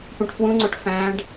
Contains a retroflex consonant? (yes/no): yes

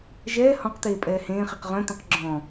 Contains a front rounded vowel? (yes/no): yes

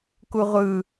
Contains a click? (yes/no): no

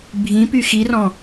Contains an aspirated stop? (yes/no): no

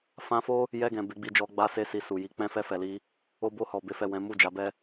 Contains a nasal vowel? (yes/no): yes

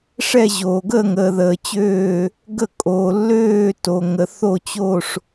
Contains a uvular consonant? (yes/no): no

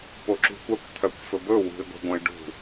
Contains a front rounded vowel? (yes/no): yes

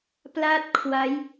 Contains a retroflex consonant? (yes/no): no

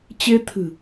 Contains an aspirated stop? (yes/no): yes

